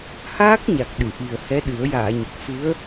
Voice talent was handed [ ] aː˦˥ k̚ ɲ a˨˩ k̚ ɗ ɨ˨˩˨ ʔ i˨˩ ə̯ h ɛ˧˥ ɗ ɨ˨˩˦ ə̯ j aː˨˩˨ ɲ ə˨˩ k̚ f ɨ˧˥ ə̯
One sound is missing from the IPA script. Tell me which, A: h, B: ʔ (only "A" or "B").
A